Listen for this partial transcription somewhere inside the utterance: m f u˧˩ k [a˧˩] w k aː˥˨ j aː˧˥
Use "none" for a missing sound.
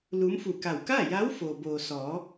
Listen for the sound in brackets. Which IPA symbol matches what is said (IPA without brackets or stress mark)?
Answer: a˧˩